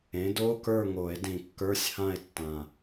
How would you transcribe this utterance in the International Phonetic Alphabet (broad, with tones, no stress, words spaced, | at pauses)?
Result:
ẽ˩˥do˧˥˧kə˞˥˨ ŋo˨˩˦e̯dĩ˨˩kːə˞˧˥˧sʲhã˥˨e̯ tːã˨˩